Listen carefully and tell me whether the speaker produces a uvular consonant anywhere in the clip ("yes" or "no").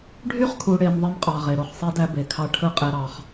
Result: yes